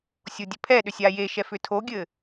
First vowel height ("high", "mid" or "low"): mid